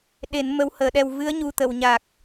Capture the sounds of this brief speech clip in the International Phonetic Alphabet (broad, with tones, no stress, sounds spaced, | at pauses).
ɗ e˨˩˦ n m ə˧˥ w h əː˨˩˦ ɗ ɛ˧ w v ɨ˧˥ ə̯ ɲ u˨˩ t̪ ə˨˩˨ w ɲ a˨˩ k̚